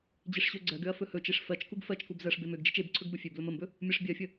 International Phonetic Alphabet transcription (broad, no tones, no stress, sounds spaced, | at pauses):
d͡ʑ e ʂ ɕ ø ɡ͡ǀ ɜ ɡ ø ɐ̯ f ɵ h ɵ t͡ʃ e ʂ f ɜ t͡ʃ k u ɡ f ɜ t͡ʃ k u b z ɜ ʂ b e m ø ɡ d͡ʒ e t͡ʃ e b ǀʰ ɵ ɡ b ɵ fʲ ø b l ɵ m ə m b ɵ | mʲ ɜ ʂ bʲ ɜ fʲ ə